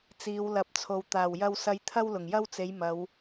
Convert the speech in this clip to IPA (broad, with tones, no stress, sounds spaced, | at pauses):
t͡s iː˨˧ w l ɐ˨˥ p̚ t͡sʰ o˨ w t̪ aː˨˩ w j ɐ˧ w s ɐ˧ j t̪ʰ ɐ˥ w l ʊ˨˩ ŋ j ɐ˥ w t͡s e˨˧ j m ɐ˨˧ w